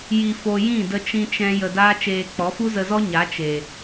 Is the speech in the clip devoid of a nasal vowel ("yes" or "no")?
no